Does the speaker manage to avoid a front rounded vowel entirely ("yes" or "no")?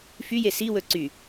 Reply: no